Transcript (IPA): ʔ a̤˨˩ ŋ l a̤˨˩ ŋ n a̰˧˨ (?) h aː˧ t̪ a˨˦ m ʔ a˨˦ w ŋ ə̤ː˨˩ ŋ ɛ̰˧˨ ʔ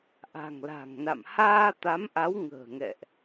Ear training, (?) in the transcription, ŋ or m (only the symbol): m